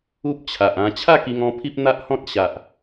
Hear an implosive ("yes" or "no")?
no